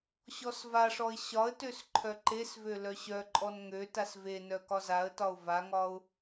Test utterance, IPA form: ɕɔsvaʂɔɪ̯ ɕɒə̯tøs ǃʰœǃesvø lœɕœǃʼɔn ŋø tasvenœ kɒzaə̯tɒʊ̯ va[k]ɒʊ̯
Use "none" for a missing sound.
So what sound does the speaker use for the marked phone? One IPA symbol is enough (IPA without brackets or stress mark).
ŋ